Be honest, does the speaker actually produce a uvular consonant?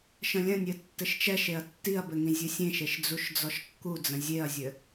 no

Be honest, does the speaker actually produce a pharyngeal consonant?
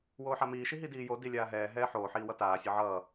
yes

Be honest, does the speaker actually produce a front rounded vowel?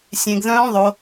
yes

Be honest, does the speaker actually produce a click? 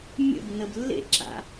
yes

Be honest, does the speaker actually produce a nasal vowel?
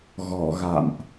no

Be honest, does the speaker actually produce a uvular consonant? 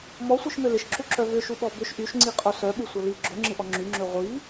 yes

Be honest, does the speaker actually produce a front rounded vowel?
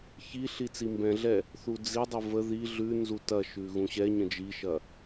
no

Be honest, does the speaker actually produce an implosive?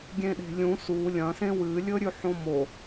yes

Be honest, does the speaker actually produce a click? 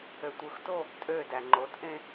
yes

